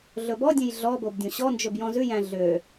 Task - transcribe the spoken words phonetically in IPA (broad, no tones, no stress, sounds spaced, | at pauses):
ɮ ɵ b ɔ dʲ ẽ j ɮ ɔ b o b dʲ õ ɕ ɔ n d͡ʒ ɵ b j ɔ̃ z ʉ j æ̃ ɮ ø